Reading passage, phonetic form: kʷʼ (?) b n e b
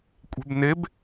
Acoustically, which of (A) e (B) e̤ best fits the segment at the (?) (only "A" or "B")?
B